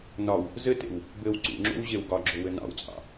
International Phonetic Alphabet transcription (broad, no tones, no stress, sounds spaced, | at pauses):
n ɒ w | z ɘ t ḛ w | b ɘ w ǀ ṵ ŋ͡ǁ o̰ w ʑ e w ɡ ɒ ɡ͡ǁ o w ɘ n ɑ̰ w t͡sʼ ɑ̰